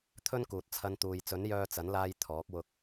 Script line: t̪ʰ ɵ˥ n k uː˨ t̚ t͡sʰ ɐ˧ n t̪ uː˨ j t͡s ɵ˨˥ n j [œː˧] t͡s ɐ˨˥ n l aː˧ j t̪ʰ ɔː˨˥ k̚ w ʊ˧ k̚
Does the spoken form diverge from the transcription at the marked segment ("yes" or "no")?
no